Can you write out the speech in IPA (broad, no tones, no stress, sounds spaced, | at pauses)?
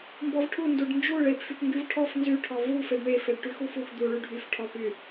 m b ɔ v ʈʰ u n d u ɖ n d͡ʒ u ɭ e p f y p ŋ ɡ y v ʈʰ ɔ f n z y ʈʰ ɔ v u f e ɖ ɳ e f e ɖ ʈ y x u f u x d̪ u ɭ y ɖʱ y f ʈʰ ɔ p y